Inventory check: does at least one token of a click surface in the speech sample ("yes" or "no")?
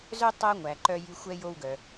yes